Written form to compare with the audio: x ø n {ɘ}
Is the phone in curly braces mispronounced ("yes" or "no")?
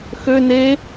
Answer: yes